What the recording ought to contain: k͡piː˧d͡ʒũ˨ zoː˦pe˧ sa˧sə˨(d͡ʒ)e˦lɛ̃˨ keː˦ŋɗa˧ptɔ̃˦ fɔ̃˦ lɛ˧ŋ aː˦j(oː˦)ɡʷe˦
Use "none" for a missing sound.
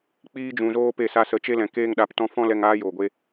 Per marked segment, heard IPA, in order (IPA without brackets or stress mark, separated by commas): t͡ʃ, oː˨